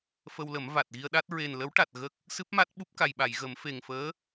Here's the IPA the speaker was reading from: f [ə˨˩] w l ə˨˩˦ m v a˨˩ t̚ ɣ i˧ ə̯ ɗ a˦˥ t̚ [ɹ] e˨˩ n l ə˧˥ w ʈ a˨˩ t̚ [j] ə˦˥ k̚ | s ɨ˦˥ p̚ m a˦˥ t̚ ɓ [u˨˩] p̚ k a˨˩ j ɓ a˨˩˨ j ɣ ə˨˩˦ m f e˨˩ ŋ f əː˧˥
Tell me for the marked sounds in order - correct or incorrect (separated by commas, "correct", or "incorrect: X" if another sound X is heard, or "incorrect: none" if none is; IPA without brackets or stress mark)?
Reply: incorrect: ə˧, correct, incorrect: ɣ, incorrect: u˦˥